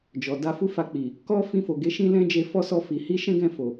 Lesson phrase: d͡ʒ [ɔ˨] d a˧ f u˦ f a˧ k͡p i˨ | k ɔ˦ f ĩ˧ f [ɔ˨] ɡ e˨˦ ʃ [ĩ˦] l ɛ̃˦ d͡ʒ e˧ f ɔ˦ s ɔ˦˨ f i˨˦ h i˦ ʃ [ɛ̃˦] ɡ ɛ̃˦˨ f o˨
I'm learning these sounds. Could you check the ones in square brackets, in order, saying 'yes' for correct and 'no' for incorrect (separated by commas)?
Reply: yes, no, yes, yes